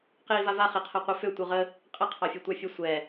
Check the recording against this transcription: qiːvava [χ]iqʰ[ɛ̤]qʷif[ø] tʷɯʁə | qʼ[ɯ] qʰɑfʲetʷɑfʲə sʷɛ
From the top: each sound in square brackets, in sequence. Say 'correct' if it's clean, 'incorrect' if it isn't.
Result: correct, incorrect, correct, incorrect

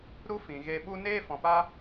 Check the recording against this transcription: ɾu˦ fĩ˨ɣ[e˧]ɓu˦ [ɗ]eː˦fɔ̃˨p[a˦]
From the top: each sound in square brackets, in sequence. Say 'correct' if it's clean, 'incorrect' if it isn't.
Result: correct, incorrect, correct

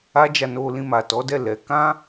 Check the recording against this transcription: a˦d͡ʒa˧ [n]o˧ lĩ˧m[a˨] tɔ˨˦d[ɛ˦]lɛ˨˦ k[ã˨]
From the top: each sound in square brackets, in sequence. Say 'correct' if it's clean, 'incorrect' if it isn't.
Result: correct, correct, incorrect, incorrect

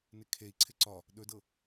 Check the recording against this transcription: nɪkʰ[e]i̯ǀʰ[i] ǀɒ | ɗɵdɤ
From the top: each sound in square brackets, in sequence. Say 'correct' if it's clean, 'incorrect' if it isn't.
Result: correct, incorrect

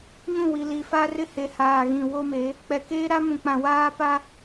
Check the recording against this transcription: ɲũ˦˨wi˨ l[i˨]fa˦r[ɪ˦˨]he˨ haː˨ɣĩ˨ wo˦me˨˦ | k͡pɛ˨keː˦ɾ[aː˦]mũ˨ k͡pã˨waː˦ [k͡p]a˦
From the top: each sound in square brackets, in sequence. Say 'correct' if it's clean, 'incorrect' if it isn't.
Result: correct, incorrect, incorrect, incorrect

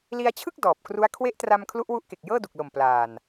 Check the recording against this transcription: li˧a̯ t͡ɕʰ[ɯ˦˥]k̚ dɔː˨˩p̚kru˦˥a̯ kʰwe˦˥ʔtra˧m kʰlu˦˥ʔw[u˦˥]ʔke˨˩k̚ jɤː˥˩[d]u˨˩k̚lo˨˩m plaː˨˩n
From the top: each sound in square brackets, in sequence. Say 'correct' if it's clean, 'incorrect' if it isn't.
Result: incorrect, correct, correct

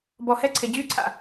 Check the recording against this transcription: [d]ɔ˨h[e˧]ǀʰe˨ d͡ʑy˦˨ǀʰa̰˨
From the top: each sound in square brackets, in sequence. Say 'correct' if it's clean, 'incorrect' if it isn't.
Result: incorrect, incorrect

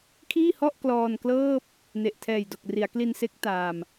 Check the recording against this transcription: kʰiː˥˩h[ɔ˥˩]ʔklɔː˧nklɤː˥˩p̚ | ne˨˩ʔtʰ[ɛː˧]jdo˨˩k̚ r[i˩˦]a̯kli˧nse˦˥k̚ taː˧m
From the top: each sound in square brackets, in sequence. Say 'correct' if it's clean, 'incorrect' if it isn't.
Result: correct, incorrect, correct

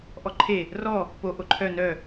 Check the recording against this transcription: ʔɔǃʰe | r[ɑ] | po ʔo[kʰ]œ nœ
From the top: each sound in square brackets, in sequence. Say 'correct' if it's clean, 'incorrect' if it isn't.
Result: incorrect, incorrect

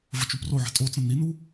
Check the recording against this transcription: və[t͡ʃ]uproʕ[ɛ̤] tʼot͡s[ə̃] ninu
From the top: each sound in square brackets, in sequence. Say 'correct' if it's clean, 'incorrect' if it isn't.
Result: correct, correct, correct

